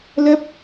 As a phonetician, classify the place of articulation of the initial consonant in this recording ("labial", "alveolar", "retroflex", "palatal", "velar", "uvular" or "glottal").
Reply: alveolar